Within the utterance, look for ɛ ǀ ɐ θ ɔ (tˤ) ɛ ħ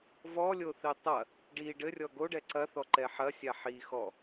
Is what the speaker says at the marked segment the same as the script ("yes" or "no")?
no